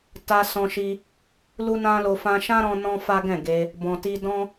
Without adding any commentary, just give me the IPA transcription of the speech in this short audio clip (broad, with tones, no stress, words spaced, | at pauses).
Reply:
ta˧ sɔ̃˧ʃi˧ | lu˦nã˦lo˧ fã˧ʃã˦ɾɔ̃˧ nɔ̃˦fa˦ɡɛ̃˦˨ɡe˧ | bɔ̃˨ti˧dɔ̃˦